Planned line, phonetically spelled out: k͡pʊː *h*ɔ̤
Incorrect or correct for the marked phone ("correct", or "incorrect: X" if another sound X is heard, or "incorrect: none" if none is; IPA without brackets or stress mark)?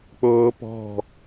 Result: incorrect: p